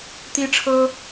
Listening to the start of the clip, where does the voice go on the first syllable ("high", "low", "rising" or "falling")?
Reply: high